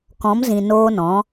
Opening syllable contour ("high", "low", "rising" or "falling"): rising